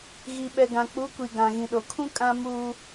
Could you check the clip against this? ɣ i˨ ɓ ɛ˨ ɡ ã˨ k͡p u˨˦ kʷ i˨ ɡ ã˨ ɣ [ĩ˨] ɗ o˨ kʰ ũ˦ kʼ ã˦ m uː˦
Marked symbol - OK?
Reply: yes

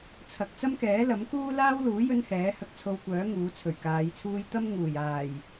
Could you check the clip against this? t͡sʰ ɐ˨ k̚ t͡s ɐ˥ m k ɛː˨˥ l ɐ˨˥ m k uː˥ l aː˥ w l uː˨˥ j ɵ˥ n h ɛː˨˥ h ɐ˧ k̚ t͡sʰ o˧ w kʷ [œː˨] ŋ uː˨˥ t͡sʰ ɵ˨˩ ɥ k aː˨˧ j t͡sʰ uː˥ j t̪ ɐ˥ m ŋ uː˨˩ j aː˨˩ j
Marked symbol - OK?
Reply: no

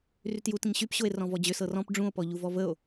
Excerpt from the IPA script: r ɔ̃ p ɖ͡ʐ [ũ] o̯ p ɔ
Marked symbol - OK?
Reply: yes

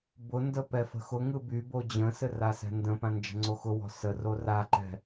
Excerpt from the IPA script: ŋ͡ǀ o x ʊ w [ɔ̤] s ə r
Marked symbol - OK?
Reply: yes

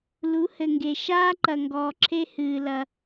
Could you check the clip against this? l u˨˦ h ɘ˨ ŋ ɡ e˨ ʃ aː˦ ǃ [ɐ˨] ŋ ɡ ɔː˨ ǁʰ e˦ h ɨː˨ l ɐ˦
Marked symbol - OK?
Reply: yes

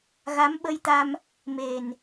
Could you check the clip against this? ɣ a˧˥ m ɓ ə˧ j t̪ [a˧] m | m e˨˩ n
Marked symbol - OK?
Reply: yes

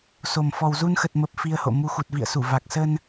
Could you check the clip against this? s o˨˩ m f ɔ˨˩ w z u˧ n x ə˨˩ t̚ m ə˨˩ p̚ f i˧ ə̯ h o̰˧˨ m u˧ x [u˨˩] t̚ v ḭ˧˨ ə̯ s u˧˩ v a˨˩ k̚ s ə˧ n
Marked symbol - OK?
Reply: yes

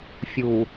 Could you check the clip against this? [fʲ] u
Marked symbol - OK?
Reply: yes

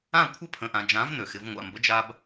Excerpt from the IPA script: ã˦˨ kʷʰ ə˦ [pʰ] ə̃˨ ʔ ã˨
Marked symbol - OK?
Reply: yes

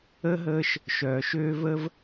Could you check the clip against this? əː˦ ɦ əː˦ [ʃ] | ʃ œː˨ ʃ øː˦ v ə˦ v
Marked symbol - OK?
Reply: yes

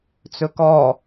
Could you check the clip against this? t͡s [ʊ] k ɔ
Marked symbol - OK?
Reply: no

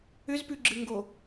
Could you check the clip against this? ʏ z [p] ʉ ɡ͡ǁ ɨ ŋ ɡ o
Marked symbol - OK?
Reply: yes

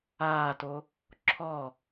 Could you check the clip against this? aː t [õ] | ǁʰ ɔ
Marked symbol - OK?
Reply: no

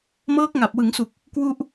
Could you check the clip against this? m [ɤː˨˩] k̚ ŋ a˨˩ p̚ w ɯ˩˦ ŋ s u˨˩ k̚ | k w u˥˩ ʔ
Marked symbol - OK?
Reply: no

